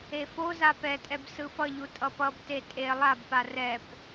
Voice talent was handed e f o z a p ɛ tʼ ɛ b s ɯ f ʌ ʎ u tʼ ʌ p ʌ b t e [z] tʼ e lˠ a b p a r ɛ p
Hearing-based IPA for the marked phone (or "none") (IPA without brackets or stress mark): none